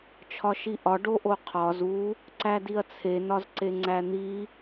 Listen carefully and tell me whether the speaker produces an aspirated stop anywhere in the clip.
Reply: yes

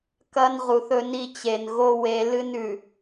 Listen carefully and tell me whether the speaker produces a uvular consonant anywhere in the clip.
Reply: yes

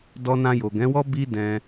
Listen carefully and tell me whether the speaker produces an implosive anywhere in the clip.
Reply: no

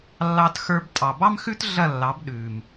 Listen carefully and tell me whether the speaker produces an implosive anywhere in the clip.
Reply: yes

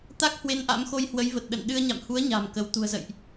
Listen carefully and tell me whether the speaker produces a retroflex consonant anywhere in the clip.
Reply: no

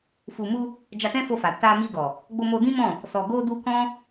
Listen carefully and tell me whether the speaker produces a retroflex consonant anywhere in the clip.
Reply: no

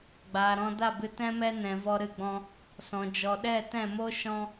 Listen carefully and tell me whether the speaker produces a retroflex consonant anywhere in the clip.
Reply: no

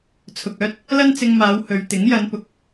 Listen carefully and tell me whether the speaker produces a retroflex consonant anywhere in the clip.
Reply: no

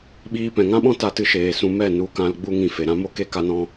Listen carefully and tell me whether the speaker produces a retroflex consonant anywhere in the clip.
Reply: no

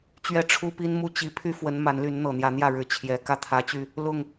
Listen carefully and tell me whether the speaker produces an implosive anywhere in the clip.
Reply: no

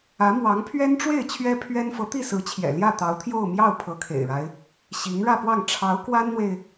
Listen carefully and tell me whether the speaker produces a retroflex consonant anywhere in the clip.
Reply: yes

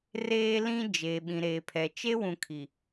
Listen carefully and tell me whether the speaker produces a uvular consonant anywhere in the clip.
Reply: no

